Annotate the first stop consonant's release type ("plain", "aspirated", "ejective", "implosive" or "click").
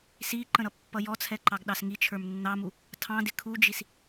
click